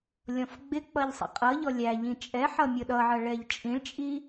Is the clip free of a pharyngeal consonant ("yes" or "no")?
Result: no